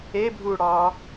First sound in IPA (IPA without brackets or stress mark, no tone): e